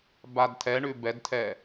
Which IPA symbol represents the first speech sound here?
b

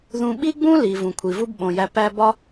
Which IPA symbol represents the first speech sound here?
ð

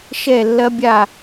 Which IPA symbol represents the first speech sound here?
ʃ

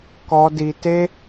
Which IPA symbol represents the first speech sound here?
k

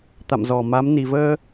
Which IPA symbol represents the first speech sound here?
t̪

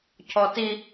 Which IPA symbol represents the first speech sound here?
cʰ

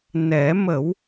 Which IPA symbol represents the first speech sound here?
n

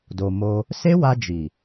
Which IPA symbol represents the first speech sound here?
d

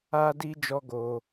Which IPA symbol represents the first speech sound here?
aː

